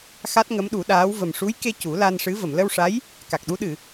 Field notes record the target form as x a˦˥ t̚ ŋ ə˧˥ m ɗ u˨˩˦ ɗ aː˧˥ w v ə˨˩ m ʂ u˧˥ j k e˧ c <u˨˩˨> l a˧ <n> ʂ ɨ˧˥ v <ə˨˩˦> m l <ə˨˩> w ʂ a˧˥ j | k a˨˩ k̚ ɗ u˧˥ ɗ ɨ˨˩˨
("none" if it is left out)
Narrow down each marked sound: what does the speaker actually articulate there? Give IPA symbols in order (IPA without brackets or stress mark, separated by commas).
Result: u˨˩˦, n, ə˨˩˨, ə˧